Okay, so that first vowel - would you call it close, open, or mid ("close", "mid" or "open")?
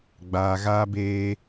open